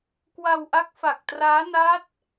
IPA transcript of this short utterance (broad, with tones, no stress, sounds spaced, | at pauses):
k w a˧ w ʔ a˦˥ k̚ f a˨˩ k̚ t r aː˦˥ n a˦˥ t̚